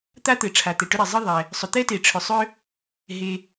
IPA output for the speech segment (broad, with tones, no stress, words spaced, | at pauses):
t̪a˥t̪ɘ˩ ʈ͡ʂʰa˩t̪ɛ˩ʈʏ˥ɾɛ˩ zˤɨ˥ðˤɛ˩ | sˤʏ˩t̪ɛ˥te˩ ʈ͡ʂʰʏ˩ sˤʏ˥ | ɦe˩